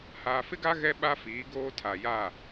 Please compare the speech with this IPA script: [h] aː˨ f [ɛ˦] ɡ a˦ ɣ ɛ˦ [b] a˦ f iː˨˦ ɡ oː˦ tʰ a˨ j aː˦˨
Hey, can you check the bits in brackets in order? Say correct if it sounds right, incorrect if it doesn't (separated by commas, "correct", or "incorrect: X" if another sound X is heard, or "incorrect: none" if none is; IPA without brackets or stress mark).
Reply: correct, incorrect: ɪ˦, incorrect: ɓ